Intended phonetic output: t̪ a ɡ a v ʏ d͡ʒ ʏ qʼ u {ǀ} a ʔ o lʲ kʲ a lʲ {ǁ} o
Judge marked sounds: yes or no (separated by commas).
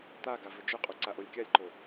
yes, no